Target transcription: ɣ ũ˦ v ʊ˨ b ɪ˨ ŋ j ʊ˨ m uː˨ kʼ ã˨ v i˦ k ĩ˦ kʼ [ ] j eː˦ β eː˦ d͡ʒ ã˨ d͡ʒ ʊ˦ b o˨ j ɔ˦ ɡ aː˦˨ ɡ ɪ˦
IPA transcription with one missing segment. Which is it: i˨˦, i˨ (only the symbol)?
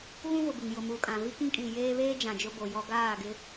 i˨